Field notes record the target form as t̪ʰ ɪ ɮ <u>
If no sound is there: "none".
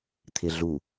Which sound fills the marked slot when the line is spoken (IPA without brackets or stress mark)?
u